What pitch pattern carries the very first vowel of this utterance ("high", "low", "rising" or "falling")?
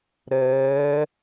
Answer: rising